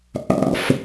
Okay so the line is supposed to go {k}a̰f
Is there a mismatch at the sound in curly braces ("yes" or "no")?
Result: yes